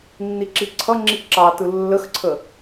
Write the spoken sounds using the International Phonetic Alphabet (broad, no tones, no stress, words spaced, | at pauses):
nːiǁiǀʰʌŋ͡ǁi ǁɑtɯ lːəxǀʰə